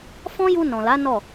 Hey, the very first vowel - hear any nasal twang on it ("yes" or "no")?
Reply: yes